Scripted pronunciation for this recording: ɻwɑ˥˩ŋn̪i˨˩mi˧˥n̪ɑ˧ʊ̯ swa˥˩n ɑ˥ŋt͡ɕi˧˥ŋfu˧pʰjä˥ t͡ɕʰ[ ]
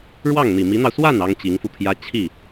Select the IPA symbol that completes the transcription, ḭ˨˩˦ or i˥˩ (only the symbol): i˥˩